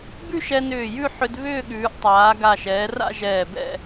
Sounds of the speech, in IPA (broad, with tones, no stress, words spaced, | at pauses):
bʉ˥˧ʃɛ˧nʏː˧˩jʉ˥˧ ħʏ˧d βʏː˥˧ɠʉː˩˧ʔ tˤaː˩˧ɡa˧˩ʃɛː˩˧ra̰˥˧ ʒɛː˧˩bɛ̰˥˧